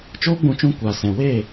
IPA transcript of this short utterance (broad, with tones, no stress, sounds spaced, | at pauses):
t͡ʃ oː˦ ɡ͡b ũ˧ t͡ʃ ũ˧ kʷ aː˨ s ɛ̃˨ w eː˦˨